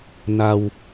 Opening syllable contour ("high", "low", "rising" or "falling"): low